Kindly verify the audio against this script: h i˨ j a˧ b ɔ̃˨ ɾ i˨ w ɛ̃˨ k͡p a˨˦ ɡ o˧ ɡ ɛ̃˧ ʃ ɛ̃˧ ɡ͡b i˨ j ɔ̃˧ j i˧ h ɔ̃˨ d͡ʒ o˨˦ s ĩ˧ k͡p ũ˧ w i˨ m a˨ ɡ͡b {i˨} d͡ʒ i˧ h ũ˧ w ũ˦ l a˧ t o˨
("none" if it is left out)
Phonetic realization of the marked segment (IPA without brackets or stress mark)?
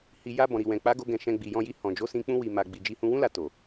i˨